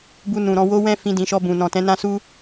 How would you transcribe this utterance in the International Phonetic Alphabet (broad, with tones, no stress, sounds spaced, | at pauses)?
b u˧ n ũ˨ ɾ ɔ̃˧ w o˦ w ɛ̃˦ f ĩ˧ d ĩ˨ ʃ ɔ˧ b ũ˨ n ɔ̃˨ t ɛ̃˨˦ n ã˦ s u˦